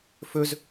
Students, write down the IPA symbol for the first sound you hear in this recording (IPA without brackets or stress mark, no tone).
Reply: f